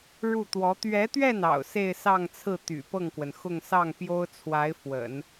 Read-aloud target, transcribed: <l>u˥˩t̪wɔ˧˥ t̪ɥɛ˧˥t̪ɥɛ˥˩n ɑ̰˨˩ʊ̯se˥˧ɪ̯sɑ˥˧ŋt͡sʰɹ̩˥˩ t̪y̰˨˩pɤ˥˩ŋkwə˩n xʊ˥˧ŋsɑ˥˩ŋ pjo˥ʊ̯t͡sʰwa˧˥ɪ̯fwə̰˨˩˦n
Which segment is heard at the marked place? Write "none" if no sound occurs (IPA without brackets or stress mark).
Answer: ɻ